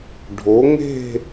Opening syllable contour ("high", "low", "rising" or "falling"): rising